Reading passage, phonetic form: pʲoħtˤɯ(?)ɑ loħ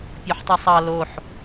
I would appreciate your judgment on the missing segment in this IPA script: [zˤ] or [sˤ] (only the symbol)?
sˤ